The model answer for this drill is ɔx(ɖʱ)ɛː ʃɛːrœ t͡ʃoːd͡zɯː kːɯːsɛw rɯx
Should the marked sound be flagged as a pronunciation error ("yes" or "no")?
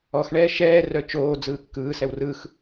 yes